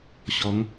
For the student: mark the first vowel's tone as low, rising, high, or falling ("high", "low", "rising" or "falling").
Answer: rising